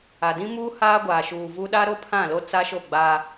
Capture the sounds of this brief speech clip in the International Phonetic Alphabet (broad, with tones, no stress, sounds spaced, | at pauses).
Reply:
a˨ d ĩ˦ m uː˦ h aː˦ ɡʷ aː˨ ʃ uː˨ v u˦ ɗ a˦ ɾ o˦ pʰ ã˦˨ l o˦ t͡s a˦ ʃ o˦˨ ɡ͡b a˦